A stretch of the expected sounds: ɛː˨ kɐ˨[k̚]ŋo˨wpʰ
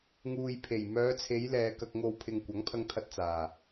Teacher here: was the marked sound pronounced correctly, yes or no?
yes